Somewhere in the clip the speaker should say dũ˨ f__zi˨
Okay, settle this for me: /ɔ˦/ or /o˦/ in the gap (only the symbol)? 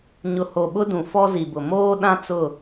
ɔ˦